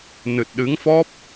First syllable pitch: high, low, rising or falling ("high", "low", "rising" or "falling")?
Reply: low